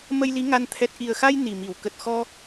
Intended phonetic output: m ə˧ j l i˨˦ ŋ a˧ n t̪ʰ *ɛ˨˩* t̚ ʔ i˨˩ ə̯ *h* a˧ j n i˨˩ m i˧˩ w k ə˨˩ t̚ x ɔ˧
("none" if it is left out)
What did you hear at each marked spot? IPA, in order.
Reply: ɛ˨˩, x

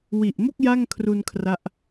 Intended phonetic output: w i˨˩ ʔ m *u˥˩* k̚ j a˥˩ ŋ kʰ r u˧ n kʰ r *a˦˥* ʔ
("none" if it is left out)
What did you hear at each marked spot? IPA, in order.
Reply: o˥˩, a˦˥

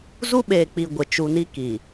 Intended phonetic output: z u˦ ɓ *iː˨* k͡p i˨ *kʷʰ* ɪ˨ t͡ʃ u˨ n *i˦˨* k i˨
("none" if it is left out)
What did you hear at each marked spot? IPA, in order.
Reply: eː˨, ɡʷ, i˦

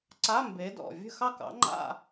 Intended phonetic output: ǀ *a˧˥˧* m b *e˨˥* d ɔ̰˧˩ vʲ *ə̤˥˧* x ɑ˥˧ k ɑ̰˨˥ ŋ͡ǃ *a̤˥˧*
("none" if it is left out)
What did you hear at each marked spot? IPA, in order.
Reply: a˧˥˧, e˨˥, ə̤˥˧, a̰˥˧

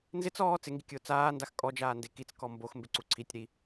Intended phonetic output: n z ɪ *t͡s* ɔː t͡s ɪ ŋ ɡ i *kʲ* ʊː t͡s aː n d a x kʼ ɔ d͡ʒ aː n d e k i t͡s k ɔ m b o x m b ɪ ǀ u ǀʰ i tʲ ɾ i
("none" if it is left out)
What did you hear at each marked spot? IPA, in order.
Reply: t͡s, kʲ

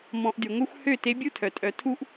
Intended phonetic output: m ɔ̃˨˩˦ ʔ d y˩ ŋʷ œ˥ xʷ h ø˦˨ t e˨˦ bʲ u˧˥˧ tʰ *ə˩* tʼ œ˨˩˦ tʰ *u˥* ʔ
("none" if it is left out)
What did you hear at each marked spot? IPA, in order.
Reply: œ˩, u˥

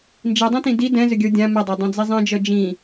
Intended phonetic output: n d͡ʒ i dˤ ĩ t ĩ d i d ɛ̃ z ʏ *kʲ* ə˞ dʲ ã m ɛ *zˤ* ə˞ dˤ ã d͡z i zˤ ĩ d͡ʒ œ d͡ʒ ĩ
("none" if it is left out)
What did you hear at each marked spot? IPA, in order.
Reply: ɡʲ, dˤ

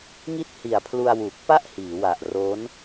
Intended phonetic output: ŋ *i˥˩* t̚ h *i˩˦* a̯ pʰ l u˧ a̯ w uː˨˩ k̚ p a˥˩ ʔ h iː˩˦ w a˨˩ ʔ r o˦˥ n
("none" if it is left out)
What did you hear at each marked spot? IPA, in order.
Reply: i˥˩, i˨˩

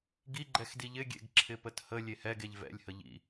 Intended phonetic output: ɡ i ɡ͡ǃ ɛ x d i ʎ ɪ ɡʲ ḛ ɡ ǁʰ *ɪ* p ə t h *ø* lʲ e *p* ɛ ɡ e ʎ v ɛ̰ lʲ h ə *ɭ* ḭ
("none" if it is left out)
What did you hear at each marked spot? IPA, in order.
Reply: ɪ, ə, h, ʎ

